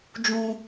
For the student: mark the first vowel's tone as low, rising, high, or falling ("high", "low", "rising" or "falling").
high